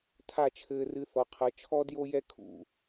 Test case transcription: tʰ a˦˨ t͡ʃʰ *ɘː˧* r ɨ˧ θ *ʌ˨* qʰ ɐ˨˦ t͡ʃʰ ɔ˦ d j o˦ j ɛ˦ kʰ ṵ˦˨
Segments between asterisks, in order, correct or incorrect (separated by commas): correct, incorrect